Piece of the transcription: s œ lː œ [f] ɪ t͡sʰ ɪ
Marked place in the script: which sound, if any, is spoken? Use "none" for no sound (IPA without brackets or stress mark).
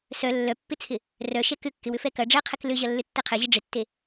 pː